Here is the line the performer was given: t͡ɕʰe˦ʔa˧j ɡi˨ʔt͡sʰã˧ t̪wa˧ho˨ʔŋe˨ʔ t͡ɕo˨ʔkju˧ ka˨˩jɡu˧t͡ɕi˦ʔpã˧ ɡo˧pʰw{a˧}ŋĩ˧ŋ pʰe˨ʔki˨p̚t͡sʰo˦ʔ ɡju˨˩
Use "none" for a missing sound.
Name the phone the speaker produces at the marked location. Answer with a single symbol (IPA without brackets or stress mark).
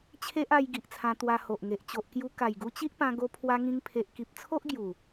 a˧